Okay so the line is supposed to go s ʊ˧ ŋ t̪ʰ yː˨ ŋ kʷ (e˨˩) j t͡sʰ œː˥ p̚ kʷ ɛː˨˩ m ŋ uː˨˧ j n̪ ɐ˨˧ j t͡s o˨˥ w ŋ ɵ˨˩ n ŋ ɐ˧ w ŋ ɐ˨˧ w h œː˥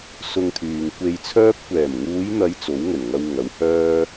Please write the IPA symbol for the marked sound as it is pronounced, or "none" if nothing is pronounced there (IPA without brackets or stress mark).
e˧